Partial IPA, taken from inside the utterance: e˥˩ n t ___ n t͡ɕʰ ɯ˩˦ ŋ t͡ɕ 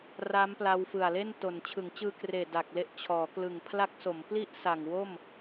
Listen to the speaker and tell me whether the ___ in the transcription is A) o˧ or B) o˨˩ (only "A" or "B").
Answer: B